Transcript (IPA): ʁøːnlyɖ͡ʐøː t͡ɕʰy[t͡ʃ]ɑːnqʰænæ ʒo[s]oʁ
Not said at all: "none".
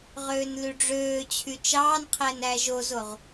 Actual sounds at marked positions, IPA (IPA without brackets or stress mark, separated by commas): t͡ʃ, z